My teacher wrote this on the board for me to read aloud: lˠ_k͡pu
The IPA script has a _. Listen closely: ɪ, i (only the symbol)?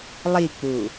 i